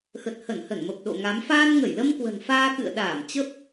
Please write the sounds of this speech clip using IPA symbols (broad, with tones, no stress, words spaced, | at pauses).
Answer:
xə˨˩t̚hə˧˩nhə˧˩nmə˨˩p̚ ɗo̰˧˨ŋa˨˦m faː˧nŋə˧˩jlə˧mkwə̤˨˩n faː˧kɨ̰˧˨ə̯ɗaː˧˩m t͡ɕə˦˥p̚